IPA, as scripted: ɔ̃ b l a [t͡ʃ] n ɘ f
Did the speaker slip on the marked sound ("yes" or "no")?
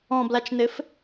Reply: no